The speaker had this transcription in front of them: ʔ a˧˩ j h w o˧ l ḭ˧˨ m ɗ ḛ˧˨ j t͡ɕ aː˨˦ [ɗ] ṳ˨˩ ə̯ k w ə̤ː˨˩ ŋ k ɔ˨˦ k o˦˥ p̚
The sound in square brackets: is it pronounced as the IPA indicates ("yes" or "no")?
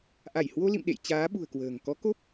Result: no